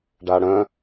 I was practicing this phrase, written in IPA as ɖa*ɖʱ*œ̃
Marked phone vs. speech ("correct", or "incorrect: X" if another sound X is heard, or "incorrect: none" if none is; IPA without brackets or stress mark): incorrect: ɽ